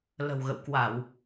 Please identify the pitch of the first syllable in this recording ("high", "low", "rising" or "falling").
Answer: low